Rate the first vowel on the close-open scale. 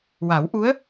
open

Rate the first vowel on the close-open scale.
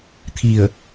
close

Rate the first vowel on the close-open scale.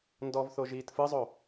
mid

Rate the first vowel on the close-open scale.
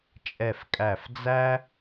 mid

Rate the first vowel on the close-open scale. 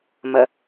mid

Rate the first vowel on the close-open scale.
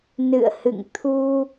close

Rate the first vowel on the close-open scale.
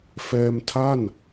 mid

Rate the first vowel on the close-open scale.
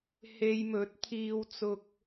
mid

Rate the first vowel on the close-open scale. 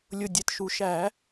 close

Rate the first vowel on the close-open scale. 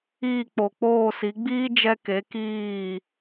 close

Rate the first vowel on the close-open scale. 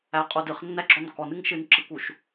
open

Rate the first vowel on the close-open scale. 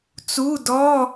close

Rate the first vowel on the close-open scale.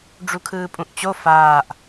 close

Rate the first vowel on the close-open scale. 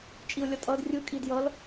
close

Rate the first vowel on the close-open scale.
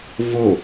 mid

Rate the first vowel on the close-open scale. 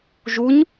close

